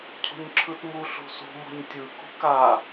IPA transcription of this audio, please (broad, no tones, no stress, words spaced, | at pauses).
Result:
cʰṳɲǁʰɯtmu ɬṳsṳ mɔ̤ɲtʲɯ kṳka